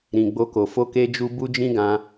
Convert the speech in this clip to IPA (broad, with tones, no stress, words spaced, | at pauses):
ɾĩ˨ɡ͡bo˧ko˨ fo˧ke˧d͡ʒu˧ bu˦d͡ʒĩ˦ɡã˧